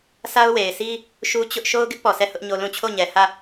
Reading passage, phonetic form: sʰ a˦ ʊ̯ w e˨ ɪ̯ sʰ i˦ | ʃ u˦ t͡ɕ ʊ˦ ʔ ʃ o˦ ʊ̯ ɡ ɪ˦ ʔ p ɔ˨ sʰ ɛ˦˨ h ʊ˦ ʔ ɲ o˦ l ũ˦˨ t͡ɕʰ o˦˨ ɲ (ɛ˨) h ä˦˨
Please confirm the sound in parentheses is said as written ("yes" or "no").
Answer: yes